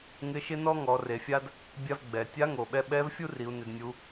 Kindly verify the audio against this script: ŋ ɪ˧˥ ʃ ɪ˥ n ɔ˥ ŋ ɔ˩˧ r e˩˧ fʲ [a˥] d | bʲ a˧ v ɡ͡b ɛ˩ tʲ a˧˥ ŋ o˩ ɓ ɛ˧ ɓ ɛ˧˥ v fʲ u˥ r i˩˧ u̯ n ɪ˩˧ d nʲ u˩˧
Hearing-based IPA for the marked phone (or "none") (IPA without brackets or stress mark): a˥